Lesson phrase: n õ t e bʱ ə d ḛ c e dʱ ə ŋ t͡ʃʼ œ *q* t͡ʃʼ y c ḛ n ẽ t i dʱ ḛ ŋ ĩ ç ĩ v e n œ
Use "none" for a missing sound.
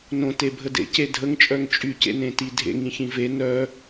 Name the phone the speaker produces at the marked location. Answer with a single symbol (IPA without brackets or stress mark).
ŋ